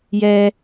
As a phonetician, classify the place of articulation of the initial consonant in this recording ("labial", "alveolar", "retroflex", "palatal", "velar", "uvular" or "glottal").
palatal